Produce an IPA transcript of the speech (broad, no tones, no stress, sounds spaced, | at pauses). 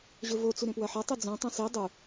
ʑ ɵ v o t͡s u ɾ ẽ p w ɐ ħ ɐ tˤ i d͡z õ tˤ õ s i dˤ u